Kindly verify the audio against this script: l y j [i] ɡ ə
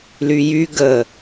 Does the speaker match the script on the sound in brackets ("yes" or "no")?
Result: no